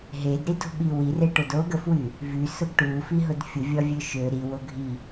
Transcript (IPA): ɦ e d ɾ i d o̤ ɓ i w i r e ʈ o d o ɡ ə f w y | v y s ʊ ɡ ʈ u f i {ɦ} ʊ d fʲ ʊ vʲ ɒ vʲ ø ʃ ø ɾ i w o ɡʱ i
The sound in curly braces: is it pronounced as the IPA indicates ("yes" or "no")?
yes